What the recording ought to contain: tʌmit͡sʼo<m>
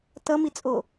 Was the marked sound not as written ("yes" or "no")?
yes